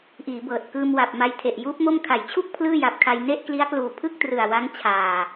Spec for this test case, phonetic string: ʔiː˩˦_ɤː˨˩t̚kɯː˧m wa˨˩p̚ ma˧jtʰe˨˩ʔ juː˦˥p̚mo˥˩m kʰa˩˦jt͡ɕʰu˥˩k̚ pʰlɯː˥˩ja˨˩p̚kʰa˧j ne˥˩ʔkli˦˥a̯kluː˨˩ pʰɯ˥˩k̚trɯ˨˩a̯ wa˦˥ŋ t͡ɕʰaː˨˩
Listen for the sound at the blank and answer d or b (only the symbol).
b